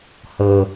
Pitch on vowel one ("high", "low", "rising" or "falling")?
low